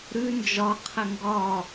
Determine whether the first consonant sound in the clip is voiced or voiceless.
voiced